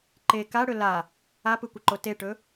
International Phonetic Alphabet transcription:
ǃ e k a ɽ ɵ l a | a p ɯ kʷ ɪ ǃ o t e ʈ ɵ

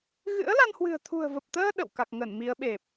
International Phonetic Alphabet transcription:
ɣ ɨ̰˧˥ ə̯ l a˧ n h w ɨ̤˨˩ ə̯ t̪ʰ ṳ˨˩ ə̯ v ə˨˩ p̚ t̪ əː˧ ɗ ə̰˧˨ w k a˨˩ k̚ ŋ ə˧˩ n m i˨˦ ə̯ ɓ e˨˩ p̚

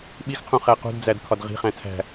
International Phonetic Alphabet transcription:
ɓ i x qʰ ũ χ æ q ṳ d d͡z æ d kʰ ɒ d ʁ i̤ χ æ̃ tʰ æ̤

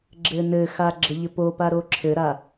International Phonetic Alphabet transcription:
ɡ͡ǁ ɘ n ɘ x a ɡ͡ǁ ə ʎ ɘ p o p a ɾ o ǁʰ ɘ ɾ a

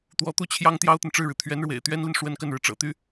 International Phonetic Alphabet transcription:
t̪ w ɔ˧˥ t̪ u˥˩ t͡ɕʰ j ɑ˥ ŋ t̪ j ɑ˥ ʊ̯ t̪ ə˨ n ʈ͡ʂ ɻ̩˥˩ ɻ ɻ̩˩ t̪ʰ ɥ ɛ˧˥ n ɻ w ḛ˨˩ ɪ̯ t̪ ɥ ɛ˥ n l i˨ n ʂ w ə˥ n k ə˥˩ n ɻ ɻ̩˩ ʈ͡ʂ ɤ̰˨˩ t̪ y˥

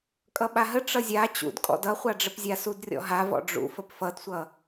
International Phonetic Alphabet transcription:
kʼ ʌ ɓ a ɦ ə ʈ͡ʂ ʌ zʲ a t͡ɕ ṵ d kʼ ɔ̰ d ʌ χʷ a ɖ͡ʐ ə p zʲ a s u d rʲ ɔ̰ ɦ a v ɔ̰ ɖ͡ʐ ṵ f ə p f ʌ d sʷ ʌ

